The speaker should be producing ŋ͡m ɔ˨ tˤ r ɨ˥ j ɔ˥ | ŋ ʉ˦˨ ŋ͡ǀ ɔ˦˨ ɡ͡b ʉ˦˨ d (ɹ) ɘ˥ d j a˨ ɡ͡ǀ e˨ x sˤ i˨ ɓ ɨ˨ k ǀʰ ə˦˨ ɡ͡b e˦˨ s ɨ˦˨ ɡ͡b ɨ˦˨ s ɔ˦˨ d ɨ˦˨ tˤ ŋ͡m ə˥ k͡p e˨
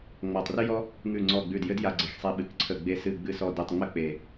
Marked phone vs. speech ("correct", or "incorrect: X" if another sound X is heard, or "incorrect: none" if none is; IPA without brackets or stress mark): incorrect: j